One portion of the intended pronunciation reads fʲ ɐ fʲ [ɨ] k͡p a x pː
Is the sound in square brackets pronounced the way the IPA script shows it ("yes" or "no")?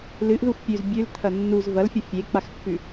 no